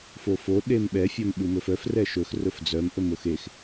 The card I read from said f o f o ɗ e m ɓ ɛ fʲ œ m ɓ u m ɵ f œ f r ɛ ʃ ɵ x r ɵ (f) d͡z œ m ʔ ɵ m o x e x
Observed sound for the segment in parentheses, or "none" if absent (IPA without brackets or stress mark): f